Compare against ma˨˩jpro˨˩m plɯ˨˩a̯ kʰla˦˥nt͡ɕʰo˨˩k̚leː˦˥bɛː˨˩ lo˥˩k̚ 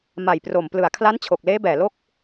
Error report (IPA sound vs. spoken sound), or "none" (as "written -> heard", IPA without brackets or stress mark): none